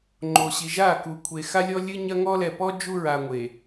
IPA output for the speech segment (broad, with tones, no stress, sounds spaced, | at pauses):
ŋ͡ǃ o˨ ɕ i˨ ʒ a˦˨ k u˨ kʷʰ e˨ x a˦ lʲ ɔ˦ lʲ ɨ˦ ɲ ɐ˦ ŋ ɔ˦ l ɛ˨ p ɔ˦ d͡ʒ u˦ ɹ a˨ ŋʷ e˨